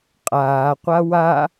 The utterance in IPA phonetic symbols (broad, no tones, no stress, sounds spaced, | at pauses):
qʼ aː qʷ a w a